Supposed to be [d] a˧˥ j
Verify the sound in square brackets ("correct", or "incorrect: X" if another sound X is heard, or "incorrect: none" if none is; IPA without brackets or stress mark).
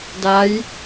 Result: correct